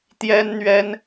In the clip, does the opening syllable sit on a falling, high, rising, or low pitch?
high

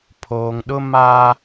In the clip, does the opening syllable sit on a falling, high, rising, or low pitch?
low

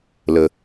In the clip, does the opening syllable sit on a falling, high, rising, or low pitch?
low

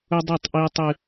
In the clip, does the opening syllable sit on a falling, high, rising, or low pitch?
high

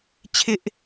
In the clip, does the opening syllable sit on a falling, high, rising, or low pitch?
high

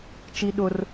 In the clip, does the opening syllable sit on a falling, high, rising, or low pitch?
high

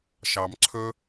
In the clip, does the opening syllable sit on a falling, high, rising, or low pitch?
low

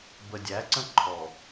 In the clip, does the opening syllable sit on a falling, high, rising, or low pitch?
low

